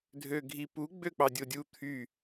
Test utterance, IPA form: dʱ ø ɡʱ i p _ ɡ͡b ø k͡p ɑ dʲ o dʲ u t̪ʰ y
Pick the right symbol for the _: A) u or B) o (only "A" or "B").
A